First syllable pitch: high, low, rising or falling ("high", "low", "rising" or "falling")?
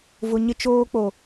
low